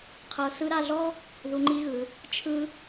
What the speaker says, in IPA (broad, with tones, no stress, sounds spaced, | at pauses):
qʰ ɤ˧˥ s ɯ˧˥ ɾ a˧ ɮ ɔ˥ | ð u˧˥ ŋ͡ǃ i˥ ɣ ɯ˩˧ | t͡ʃʰ ɯ˥